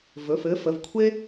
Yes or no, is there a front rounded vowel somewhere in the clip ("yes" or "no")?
no